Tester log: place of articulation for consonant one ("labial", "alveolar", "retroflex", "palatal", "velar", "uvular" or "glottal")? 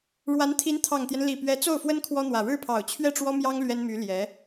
retroflex